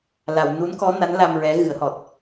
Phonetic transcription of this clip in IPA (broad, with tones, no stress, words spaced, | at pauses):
la˨˩˨w nu˧˥nkɔ˧˥na˧˥n la˧mɹɛ˧˥ ɣɨ˨˩˦ə̯hɔ˨˩t̚